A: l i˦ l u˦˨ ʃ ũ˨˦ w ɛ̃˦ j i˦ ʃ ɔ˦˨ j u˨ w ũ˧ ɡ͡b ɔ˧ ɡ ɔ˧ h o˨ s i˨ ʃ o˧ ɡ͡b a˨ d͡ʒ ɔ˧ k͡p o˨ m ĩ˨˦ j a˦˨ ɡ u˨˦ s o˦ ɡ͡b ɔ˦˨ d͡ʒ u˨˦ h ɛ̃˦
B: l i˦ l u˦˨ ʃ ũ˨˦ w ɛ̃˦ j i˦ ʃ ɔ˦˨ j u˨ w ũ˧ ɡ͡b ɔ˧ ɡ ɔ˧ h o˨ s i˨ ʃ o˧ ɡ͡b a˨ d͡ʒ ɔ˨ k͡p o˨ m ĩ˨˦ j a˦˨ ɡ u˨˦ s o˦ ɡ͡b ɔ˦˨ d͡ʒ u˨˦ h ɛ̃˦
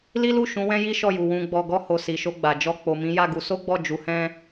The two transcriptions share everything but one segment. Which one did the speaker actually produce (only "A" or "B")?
A